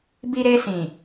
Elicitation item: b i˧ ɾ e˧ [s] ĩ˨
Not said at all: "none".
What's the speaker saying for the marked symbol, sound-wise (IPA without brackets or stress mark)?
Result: s